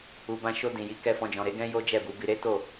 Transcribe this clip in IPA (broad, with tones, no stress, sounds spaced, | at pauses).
u˨ b ã˧ ʃ o˧ d ĩ˨ j i˨˦ k ɛ˧ f ɔ̃˧ d͡ʒ ɔ̃˨ ɾ e˨˦ ɡ ɛ̃˦ j o˦ d͡ʒ ɛ˦˨ b u˨˦ b i˧ ɾ e˦ t o˦˨